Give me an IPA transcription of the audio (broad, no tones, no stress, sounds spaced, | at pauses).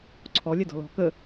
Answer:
ǀʰ ɔ lʲ ɛ d ɔ̤ l ɔ̤ k ə